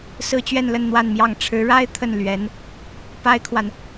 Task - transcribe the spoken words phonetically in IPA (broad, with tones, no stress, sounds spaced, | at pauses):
s ɹ̩˥ t͡ɕ ɥ ɛ˥˧ n l ə˥˧ n n̪ w a˥˧ n m j ɑ˥˩ ŋ ʈ͡ʂʰ ɻ̩˧˥ ɻ a˥ ɪ̯ t̪ʰ ə˥˩ n l ɥ ɛ˧˥ n | p a˥ ɪ̯ kʰ w a˨ n